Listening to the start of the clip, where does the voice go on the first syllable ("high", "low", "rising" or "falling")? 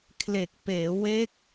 low